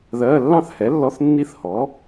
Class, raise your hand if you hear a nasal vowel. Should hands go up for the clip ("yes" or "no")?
yes